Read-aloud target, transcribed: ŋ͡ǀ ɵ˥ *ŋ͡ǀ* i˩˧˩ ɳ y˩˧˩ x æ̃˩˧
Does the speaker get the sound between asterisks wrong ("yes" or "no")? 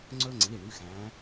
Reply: no